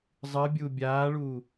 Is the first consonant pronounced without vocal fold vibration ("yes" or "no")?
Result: no